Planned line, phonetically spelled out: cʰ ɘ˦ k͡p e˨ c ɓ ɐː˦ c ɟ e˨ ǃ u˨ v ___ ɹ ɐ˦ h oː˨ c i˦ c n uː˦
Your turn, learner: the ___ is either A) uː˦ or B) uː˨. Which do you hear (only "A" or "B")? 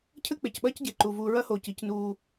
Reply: B